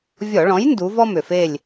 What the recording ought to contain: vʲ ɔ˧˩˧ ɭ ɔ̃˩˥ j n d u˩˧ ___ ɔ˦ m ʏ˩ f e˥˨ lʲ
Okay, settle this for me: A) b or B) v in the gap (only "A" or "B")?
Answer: B